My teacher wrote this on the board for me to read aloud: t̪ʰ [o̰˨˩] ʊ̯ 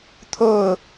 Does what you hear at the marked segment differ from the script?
yes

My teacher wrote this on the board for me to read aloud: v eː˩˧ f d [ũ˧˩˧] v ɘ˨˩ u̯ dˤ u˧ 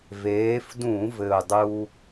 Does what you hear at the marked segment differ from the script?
no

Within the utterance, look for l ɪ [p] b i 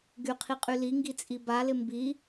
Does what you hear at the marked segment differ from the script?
yes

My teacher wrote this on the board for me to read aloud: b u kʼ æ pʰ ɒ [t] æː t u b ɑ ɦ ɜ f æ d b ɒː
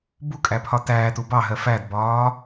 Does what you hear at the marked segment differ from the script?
no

